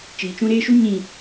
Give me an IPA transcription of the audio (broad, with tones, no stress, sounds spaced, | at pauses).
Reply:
t͡ʃ iː˨ t͡ʃ ũ˦ ɾ eː˦ ʃ u˦ ɲ ĩ˨